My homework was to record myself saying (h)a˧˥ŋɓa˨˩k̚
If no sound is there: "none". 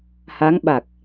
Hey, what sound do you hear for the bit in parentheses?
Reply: h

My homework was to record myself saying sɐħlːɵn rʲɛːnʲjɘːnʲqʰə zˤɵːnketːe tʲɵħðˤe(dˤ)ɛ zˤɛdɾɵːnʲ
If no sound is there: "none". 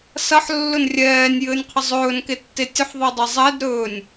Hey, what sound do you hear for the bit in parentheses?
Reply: dˤ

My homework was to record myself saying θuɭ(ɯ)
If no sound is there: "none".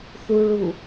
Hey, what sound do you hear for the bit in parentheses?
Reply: u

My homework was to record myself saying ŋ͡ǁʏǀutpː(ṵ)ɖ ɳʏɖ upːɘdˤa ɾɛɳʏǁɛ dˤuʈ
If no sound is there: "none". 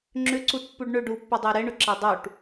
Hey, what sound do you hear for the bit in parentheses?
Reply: u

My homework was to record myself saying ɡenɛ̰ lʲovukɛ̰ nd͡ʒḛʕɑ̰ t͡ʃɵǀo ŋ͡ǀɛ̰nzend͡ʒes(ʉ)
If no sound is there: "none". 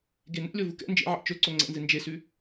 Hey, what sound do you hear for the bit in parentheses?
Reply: ʉ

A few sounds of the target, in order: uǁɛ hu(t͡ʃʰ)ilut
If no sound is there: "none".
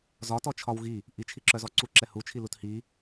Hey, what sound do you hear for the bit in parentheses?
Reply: t͡ʃʰ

